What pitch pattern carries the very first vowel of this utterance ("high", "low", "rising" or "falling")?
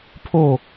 falling